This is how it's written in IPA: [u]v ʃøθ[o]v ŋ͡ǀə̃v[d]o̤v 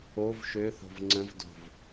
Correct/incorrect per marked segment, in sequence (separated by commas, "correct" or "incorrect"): incorrect, incorrect, correct